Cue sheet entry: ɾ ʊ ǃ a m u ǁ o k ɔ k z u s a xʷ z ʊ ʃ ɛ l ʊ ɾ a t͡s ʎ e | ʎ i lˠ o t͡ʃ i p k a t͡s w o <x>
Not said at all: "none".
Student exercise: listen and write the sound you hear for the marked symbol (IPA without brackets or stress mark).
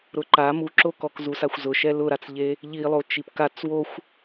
xʷ